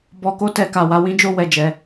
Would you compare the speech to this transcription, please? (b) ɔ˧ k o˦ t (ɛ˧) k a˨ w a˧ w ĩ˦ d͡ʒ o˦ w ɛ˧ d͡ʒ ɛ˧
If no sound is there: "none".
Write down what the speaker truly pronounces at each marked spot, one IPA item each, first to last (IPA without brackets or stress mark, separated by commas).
b, ɛ˧